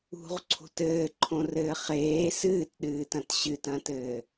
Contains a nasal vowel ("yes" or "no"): yes